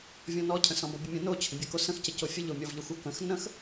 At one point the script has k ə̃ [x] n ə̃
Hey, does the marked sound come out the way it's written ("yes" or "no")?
yes